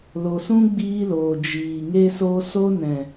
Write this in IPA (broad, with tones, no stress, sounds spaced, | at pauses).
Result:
l o˨ s ũ˦ ɡ͡b iː˦ l oː˨ d͡ʒ iː˨ ŋ e˦ s o˦ s o˦ n ɛ̃˨